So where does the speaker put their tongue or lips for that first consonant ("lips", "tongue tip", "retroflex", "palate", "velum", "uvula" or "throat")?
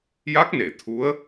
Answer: palate